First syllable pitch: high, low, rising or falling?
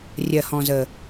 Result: low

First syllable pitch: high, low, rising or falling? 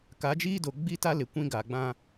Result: rising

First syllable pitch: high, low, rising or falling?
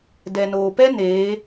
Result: low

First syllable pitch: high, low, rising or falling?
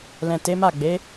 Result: low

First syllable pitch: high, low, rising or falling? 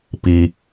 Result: high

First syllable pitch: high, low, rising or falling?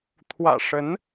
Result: low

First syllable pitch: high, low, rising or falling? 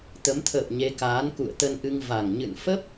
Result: rising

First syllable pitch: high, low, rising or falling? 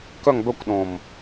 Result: falling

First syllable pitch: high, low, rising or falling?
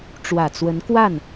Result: low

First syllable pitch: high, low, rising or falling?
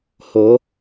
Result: rising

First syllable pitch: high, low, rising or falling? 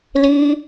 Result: high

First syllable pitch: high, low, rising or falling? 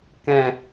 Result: low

